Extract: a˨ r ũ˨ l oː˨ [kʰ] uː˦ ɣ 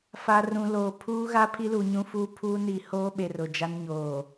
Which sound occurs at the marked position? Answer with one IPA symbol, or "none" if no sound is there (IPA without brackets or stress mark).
pʰ